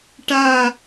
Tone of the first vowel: falling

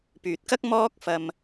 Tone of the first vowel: low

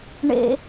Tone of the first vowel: high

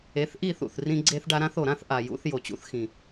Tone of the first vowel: rising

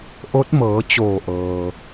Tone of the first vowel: rising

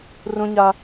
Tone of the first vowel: high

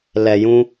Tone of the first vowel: low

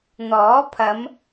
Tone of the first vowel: rising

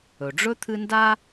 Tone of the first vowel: low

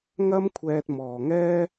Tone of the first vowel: high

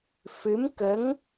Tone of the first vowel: rising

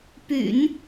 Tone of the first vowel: low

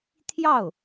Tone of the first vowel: falling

